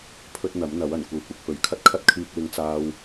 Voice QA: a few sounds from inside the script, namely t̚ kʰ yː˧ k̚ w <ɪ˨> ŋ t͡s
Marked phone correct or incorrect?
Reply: incorrect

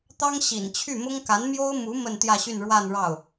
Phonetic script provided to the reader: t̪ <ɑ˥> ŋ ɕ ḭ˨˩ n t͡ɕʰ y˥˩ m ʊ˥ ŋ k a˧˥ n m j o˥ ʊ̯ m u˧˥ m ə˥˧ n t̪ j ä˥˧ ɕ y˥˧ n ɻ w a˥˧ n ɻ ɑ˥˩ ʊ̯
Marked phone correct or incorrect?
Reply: correct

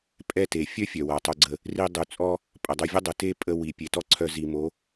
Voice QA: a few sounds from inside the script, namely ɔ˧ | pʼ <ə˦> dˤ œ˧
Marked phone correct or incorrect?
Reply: incorrect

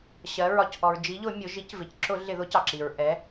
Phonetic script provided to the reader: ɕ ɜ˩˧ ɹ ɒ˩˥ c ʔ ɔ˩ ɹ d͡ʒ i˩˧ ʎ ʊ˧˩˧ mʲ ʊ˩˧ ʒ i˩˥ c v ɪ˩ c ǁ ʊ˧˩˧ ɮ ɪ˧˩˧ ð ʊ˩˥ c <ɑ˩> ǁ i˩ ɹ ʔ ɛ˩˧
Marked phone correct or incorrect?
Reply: correct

